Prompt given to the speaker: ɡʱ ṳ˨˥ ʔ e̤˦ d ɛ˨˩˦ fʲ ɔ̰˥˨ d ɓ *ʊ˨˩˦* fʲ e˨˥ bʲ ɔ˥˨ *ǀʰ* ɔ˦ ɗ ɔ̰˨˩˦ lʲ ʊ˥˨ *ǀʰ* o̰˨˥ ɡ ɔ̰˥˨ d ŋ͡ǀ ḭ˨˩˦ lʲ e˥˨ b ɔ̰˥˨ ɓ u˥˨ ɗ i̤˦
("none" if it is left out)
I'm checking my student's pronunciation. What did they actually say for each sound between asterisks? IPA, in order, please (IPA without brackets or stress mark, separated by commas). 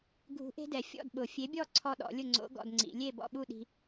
ʊ˨˩˦, ǀʰ, ŋ͡ǀ